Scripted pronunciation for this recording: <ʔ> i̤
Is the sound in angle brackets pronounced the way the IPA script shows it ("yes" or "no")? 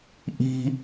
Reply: yes